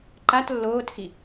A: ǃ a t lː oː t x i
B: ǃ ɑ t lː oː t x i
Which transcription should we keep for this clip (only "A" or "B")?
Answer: A